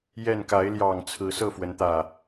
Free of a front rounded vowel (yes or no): yes